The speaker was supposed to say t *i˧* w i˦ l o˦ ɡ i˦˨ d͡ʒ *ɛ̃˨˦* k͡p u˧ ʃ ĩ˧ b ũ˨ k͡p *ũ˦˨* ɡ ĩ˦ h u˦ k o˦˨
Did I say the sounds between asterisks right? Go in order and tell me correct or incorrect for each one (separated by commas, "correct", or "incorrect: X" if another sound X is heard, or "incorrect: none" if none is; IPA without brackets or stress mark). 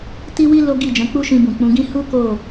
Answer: incorrect: i˦, correct, incorrect: ũ˨˦